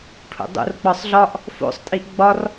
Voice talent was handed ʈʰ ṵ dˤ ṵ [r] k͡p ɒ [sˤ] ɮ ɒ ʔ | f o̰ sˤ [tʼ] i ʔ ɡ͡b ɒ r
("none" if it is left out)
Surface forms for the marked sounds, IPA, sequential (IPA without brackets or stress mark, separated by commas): r, sˤ, tʼ